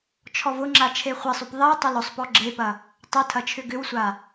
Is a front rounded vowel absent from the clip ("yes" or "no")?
no